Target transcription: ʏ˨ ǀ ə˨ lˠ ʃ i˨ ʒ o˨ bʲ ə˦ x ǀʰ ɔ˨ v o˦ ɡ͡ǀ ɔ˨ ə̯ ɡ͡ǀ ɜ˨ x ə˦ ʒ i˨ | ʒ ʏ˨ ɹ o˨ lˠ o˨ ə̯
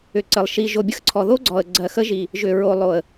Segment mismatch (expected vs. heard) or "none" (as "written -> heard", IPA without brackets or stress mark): v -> ð